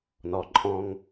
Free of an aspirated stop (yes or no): yes